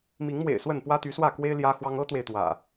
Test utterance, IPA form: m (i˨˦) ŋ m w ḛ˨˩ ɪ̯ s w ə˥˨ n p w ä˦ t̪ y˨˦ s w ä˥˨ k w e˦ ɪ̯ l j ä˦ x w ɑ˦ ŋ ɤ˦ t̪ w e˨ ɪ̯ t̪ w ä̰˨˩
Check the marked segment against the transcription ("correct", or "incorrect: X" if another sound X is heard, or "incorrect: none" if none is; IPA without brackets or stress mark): correct